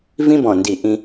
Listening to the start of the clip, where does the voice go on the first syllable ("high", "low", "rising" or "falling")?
high